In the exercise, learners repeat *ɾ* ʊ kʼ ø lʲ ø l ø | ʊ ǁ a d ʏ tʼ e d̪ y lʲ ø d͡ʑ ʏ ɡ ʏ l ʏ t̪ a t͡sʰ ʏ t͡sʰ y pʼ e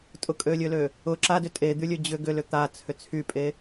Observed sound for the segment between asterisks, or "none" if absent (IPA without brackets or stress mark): tʼ